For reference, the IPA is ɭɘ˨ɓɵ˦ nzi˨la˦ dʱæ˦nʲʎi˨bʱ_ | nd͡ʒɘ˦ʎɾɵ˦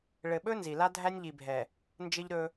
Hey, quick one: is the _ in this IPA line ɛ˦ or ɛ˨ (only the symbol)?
ɛ˨